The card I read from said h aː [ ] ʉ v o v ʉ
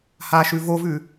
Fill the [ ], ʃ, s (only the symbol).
ʃ